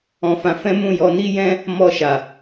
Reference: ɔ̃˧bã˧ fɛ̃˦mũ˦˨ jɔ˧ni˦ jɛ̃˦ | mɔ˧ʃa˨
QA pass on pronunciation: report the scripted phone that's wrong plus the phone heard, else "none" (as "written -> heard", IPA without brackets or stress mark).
b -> f